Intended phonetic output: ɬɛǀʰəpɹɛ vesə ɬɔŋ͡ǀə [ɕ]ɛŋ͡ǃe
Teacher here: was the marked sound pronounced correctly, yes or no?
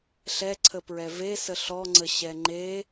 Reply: yes